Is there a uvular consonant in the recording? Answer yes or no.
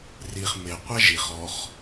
yes